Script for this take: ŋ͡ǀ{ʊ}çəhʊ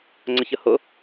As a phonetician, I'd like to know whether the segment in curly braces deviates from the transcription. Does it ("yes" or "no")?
yes